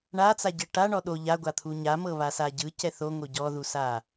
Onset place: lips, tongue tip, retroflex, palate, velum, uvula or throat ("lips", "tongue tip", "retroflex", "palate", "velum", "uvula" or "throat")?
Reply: retroflex